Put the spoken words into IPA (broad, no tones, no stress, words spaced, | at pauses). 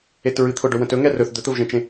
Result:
etɹɨt̪ʰʊɖɵ wə̃tɵŋɛ rɵθ d̪ɵt̪əvʒɛ̃t͡ʃẽ